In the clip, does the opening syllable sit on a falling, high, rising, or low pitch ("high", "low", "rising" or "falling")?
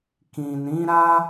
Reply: low